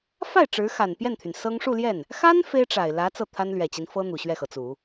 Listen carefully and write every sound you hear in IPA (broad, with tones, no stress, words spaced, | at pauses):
fa˥˩ɪ̯ ʈ͡ʂɻ̩˧˥xa˨˩npjɛ˥˩nt̪ʰy˩n sɤ˥ŋ ʂu˥˧ljɛ˥˩n | xa˥n fe˥ɪ̯ʈ͡ʂa˨˩ɪ̯lä˧˥ t͡sɤ˥˩t̪ʰa˥n lɥɛ˨˩t͡ɕi˦n fɤ˥ n̪u˨˩ɕɥɛ˥˩xɤ˩t͡su˨˩˦